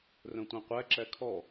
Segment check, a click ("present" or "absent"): present